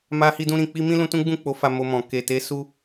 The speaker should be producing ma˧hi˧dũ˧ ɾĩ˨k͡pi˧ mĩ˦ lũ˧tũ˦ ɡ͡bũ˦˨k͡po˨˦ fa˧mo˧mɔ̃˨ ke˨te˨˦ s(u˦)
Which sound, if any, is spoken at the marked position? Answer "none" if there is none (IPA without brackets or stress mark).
u˦